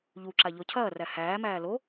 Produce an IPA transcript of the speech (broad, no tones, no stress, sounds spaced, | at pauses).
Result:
ʎ u ǁ a ʎ ɔ cʰ ɐː r æ h æː m æː l o